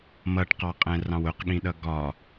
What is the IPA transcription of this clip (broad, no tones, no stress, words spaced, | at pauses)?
mʌʈqɑqʼɛ̃rɑ̃w ʊqɠĩɗʌ ɡɒ